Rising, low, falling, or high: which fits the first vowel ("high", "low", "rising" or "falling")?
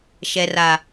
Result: low